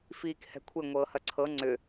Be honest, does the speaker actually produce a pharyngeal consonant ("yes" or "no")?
no